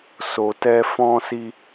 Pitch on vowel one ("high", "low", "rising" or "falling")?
low